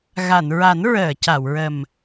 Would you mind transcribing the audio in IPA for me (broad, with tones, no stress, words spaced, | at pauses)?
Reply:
ɣa˨˩˨nɹa˨˩˦n ɹəː˨˩˨ca˨˩˨wɹə˨˩m